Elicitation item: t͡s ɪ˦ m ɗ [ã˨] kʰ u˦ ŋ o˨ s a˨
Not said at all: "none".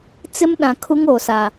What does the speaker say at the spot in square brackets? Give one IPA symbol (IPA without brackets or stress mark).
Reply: ã˨